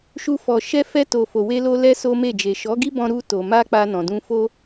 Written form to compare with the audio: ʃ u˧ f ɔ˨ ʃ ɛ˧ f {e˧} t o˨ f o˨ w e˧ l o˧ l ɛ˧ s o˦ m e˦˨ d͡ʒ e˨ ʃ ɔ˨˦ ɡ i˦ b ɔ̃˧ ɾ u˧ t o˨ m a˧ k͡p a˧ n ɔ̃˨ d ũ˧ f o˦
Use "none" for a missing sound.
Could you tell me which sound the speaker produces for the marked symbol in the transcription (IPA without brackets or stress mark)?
ɛ˧